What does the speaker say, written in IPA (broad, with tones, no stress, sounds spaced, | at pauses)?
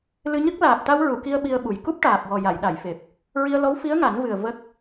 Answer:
l ɨ˧ ɲ ə˦˥ k̚ l aː˨˩ p̚ t̪ a˧ w ɹ u˨˩˨ k i˧ ə̯ ɓ i˧ ə̯ ɓ u˨˩ j k u˦˥ p̚ ʈ aː˨˩ p̚ w ɔ˨˩ j a˨˩˨ j ɗ a˨˩˨ j f e˨˩ p̚ | ɹ i˧ ə̯ l ɔ˧˥ w f i˧˥ ə̯ ŋ a˨˩˦ n v ɨ˨˩ ə̯ v ə˦˥ k̚